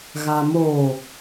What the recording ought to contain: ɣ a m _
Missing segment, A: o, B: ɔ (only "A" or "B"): A